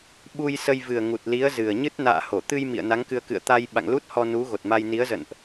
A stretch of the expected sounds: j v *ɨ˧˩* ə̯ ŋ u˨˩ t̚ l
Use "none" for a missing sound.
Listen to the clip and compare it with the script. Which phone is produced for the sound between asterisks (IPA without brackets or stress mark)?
ɨ˨˩